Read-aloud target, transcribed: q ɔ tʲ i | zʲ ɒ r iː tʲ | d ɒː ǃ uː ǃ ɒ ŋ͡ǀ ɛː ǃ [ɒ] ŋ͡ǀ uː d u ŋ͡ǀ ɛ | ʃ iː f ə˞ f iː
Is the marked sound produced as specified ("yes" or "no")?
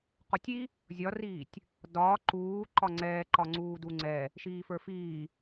yes